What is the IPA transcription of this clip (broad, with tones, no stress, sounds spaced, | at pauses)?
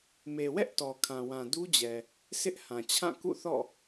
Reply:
m e˨ w ɛ˦ ʔ t ɔ˨ kʰ ã˨ w ã˨ d u˦ d͡ʑ ɛ˨ | sʰ ɪ˦ ʔ h ã˨ t͡ɕʰ ã˦˨ k ṵ˦˨ θ ɔ̰˦˨